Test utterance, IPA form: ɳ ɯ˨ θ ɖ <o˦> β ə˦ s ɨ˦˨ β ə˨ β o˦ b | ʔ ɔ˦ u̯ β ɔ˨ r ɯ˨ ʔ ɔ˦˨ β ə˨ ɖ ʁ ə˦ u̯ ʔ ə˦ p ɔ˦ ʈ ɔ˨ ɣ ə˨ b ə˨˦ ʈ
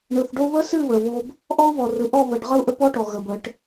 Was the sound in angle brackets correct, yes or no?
yes